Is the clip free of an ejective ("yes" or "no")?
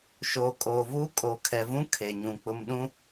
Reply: no